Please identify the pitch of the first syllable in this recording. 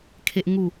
high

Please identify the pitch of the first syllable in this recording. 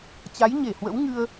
rising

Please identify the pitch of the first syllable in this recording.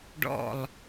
falling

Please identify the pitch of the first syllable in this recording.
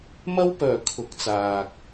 high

